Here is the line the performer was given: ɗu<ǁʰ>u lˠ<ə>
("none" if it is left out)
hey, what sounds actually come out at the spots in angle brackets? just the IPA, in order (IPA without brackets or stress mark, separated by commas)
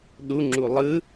ŋ͡ǁ, ɯ